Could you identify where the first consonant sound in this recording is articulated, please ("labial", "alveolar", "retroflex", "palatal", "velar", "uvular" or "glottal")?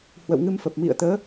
glottal